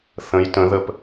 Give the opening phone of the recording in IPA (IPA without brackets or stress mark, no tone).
θ